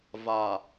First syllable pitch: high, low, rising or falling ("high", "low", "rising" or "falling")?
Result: low